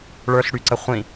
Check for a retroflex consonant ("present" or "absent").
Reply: present